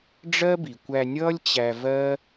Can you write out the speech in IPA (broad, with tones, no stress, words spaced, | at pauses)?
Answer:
ɖ͡ʐɜ˦bi˨kʷæ˧nʲʌː˦lʲ t͡ɕæ˧vɜ˦